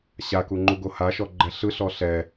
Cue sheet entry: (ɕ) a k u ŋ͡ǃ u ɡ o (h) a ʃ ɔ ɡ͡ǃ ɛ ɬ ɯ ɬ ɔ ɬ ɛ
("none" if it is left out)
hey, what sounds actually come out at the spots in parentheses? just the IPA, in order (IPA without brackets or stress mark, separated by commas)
ɕ, h